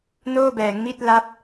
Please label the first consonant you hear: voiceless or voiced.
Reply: voiced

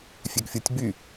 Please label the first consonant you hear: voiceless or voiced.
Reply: voiceless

